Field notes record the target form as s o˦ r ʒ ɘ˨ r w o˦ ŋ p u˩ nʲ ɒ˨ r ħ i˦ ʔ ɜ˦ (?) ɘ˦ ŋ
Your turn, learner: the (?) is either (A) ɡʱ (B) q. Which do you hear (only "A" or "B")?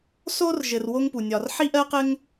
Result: B